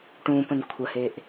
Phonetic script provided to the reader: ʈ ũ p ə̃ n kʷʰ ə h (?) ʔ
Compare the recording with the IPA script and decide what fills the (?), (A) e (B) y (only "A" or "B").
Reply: A